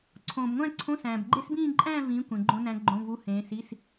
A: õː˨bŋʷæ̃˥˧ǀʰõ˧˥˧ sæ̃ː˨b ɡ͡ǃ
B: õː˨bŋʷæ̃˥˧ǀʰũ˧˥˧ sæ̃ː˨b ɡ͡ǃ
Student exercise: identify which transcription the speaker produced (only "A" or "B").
A